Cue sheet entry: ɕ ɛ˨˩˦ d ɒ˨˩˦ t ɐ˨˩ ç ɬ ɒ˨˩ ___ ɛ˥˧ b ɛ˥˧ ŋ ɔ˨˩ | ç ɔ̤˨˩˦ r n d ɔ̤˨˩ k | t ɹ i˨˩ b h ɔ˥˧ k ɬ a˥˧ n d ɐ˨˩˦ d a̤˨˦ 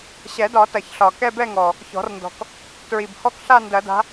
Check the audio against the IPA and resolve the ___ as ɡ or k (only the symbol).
k